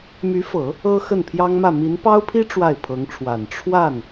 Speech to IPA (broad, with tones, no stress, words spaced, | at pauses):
my˧˥fɤ˨˩˦ | ɤ˥ xə˥˩npʰjɑ˥ŋmä˥˩ mi˧˥npɑ˥ʊ̯pʰi˥ ʈ͡ʂwa˥˩ɪ̯pʰɤ˧˥ŋʈ͡ʂʰwa˨˩n ʈ͡ʂʰwa˥˩n